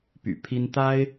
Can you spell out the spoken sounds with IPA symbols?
py̰˨˩ pʰi˦n t̪a˦ɪ̯

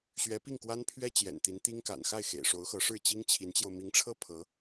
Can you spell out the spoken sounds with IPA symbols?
ɕɥɛ˧˥pi˥˩ŋkwa˥npʰɥɛ˥ t͡ɕjɛ̰˨˩nt̪i˧˥nt̪i˥ŋka̰˨˩n xa˥˩ɪ̯xḛ˨˩ɪ̯ʂo˧˥ʊ̯xɤ˧˥ ʂɻ̩˥˩t͡ɕi˥ŋt͡ɕʰi˧˥nt͡ɕjo˧ʊ̯ mi˧˥ŋʈ͡ʂʰɤ˥ pʰɤ˧˥

